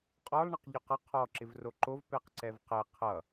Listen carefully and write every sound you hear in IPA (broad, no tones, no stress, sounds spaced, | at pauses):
qʼ ɔ lˠ ɳ ʌ q ʎ ɔ q ʌ qʰ ɔ ǁ ɪ v r o ǃ o v p ɛ q ǀ ɛ v q ɛ qʰ ʌ